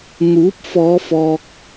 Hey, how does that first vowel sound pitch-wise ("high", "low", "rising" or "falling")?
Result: rising